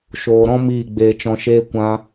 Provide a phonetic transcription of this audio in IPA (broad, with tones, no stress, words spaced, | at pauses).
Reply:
ʃoː˨ɾɔ̃˦ miː˦˨ɡ͡beː˧t͡ʃɔ̃˧ʃeː˦ kʷã˧